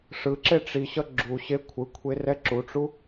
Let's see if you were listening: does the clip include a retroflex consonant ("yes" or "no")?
yes